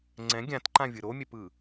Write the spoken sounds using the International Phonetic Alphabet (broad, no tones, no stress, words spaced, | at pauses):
ŋ͡ǀɛ̃ ɡʲãtǃã vʲɯɾomʲɛpɯ